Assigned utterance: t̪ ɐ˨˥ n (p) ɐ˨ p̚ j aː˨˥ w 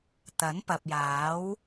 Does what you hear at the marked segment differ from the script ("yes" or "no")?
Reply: no